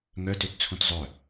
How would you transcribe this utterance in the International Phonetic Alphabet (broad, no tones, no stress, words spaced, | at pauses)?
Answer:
ŋœtøtt͡sʰũt zˤœ